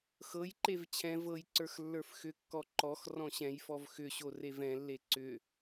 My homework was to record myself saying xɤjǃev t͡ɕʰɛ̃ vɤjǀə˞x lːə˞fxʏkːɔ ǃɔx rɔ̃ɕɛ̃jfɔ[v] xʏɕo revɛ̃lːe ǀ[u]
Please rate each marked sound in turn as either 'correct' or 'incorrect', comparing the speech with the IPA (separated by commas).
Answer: correct, incorrect